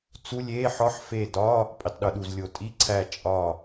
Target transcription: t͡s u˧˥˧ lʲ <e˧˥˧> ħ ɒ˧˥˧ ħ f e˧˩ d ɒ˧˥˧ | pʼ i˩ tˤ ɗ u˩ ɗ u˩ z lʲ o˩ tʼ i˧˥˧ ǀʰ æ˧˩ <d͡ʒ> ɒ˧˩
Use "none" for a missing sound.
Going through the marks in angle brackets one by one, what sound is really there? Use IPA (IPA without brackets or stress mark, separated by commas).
e˧˥˧, t͡ʃʼ